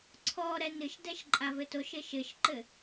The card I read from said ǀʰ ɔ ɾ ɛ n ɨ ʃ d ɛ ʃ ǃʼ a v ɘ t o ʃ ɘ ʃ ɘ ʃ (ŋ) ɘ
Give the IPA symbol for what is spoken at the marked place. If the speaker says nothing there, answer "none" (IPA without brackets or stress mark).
ǃ